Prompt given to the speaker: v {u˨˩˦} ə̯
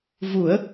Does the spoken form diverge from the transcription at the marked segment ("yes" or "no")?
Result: no